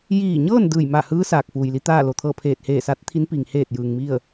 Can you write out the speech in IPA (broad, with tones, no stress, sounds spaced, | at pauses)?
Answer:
j iː˧˩ ɲ ɤː˥˨ n d ɯː˧˩ j m aː˧˩ h ɯː˧˥ s aː˧˩ k̚ f uː˩ j l i˧˥ t̪ aː˥˨ l o˩ t̪ʰ ɤː˥˨ pʰ eː˧˩ t̚ h eː˧˩ s a˧˥ t̚ t̪ʰ i˧˥ n p iː˩ ŋ h eː˧˩ t̚ j ɯː˩ ŋ m i˥˨ ə̯